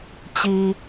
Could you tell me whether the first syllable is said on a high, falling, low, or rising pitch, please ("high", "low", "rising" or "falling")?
high